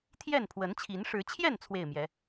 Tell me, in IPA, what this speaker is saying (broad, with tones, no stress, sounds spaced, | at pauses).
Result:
t̪ʰ j ɛ˥˨ n pʰ w ə˨˦ n t͡ɕʰ i˨˦ n ʂ ɻ̩˨˦ t͡ɕʰ j ɛ˥˨ n t͡sʰ w e˥˨ ɪ̯ m j ɛ˨˦